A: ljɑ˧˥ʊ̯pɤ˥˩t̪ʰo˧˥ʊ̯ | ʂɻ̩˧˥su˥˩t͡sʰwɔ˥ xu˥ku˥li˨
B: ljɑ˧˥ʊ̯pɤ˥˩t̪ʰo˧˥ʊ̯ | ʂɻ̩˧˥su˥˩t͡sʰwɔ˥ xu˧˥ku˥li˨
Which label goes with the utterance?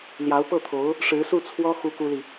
A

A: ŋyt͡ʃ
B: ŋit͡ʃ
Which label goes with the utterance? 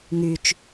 A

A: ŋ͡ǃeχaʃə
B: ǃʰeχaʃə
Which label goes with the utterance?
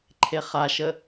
B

